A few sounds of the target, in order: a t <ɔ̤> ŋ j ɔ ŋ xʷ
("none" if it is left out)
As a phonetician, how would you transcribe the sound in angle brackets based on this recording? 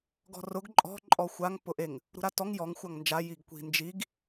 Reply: ɔ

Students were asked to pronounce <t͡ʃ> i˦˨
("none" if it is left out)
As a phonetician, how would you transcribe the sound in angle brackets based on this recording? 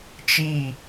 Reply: t͡ʃ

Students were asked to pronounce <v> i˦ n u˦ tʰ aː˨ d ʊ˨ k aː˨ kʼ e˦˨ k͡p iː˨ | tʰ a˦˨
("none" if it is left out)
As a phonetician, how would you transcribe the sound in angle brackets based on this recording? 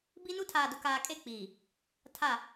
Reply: b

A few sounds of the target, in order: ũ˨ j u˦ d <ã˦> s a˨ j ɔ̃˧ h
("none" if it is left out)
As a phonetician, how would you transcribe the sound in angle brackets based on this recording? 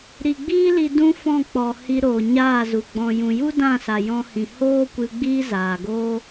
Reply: ã˦˨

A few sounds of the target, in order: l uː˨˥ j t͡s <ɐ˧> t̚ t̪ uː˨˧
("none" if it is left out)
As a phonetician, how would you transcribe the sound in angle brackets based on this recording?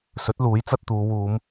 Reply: ɐ˧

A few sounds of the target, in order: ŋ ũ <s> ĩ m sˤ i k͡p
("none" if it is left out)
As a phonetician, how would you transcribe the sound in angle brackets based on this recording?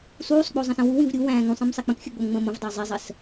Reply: sˤ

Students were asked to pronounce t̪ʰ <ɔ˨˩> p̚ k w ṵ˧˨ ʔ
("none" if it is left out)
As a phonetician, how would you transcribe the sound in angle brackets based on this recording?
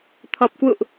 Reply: ɔ˨˩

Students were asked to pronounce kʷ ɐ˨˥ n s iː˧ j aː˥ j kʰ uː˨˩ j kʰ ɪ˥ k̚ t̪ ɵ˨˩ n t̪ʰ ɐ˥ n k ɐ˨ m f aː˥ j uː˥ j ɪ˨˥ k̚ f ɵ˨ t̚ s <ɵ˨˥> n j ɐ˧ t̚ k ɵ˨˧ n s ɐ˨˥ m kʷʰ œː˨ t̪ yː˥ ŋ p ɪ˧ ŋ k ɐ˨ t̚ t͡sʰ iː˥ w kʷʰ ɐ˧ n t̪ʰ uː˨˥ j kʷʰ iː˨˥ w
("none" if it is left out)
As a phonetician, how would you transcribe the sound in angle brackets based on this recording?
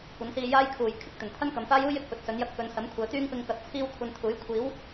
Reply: ɵ˨˥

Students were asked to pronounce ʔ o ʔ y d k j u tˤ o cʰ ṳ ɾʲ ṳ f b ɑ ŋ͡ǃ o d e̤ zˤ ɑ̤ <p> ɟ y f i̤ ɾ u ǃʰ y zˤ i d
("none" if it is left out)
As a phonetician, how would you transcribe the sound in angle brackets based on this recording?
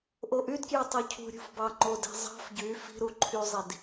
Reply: f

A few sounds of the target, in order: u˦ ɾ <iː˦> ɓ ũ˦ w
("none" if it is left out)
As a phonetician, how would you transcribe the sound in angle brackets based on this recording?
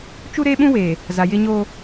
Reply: eː˦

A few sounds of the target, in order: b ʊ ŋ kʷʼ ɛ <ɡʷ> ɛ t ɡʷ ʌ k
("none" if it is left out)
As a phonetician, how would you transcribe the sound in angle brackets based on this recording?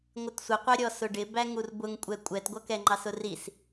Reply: kʷʼ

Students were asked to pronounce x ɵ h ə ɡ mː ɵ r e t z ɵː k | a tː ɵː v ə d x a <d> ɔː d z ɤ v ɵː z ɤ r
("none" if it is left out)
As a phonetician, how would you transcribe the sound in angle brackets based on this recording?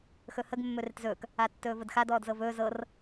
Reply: d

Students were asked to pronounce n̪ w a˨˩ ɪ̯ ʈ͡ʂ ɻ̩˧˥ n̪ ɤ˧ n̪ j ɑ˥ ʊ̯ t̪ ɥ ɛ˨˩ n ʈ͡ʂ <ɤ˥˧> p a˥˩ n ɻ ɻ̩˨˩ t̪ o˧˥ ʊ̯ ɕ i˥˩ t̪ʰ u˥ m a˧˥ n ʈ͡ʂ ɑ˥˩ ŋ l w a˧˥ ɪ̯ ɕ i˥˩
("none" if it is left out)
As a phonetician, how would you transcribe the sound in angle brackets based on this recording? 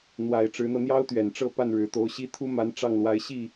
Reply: ɤ˥˧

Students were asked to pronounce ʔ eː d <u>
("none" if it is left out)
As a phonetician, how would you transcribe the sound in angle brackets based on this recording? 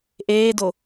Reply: o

